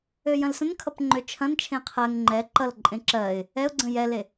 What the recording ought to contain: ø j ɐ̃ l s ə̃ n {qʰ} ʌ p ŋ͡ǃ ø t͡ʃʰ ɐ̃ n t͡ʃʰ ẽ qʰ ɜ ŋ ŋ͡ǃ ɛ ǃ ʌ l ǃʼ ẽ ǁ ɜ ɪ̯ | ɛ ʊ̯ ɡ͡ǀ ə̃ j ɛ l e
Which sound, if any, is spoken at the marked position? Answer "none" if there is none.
kʰ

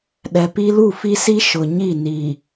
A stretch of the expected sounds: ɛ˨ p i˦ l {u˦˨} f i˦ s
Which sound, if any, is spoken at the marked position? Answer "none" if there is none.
u˦˨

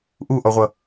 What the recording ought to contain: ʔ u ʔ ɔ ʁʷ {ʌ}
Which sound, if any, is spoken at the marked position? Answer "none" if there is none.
ʌ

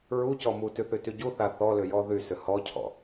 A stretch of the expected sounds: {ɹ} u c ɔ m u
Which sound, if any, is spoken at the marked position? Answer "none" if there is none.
ɹ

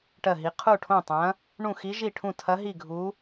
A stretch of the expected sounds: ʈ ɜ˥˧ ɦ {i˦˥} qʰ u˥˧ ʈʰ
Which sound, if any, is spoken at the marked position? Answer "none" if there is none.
i˦˥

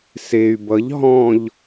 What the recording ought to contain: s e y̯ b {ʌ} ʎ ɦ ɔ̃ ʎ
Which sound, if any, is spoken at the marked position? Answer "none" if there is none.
ʌ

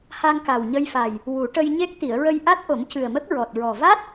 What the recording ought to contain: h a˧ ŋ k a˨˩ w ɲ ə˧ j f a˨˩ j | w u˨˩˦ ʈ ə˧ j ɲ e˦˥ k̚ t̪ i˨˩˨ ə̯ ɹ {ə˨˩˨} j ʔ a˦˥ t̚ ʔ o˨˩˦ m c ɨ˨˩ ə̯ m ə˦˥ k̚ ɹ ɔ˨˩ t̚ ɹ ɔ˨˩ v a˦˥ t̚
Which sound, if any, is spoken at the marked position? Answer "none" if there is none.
ə˧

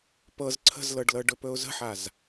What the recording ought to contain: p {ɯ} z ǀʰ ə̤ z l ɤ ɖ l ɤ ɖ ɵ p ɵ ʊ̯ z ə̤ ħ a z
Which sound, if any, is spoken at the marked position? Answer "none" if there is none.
ɤ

